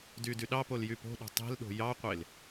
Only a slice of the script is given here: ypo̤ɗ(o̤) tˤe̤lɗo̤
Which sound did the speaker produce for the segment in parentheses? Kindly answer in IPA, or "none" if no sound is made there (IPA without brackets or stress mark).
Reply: o̤